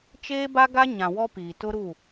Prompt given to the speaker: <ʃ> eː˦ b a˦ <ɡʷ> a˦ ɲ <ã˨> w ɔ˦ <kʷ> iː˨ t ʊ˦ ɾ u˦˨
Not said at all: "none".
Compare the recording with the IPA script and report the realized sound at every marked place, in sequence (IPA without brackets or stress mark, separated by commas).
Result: t͡ʃ, ɡ, ã˨, p